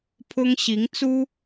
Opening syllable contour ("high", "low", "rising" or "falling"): high